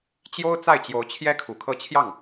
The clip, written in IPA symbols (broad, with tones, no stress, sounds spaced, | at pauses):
t͡ɕ j o˥ ʊ̯ t͡s a˥˩ ɪ̯ t͡ɕ j o˧˥ ʊ̯ t͡ɕʰ j ɛ˥ kʰ u˨˩ kʰ ɤ˥˧ t͡ɕʰ j ɑ˥˩ ŋ